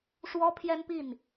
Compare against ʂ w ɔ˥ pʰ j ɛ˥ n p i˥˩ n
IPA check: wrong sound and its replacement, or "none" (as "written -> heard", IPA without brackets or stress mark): none